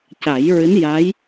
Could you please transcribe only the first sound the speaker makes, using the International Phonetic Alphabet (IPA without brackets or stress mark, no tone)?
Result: c